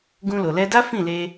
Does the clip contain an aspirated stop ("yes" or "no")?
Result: no